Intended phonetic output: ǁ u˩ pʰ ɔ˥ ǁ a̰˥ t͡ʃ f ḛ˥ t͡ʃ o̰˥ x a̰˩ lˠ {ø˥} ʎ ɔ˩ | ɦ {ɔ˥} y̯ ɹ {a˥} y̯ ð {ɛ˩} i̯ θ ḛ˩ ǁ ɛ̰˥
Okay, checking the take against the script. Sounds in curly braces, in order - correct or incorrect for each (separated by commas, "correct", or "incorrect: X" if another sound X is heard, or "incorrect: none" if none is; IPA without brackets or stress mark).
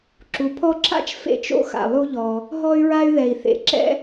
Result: incorrect: u˥, correct, correct, correct